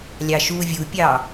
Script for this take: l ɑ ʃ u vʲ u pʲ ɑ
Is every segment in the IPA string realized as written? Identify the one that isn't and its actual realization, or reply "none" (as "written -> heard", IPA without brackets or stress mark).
l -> lʲ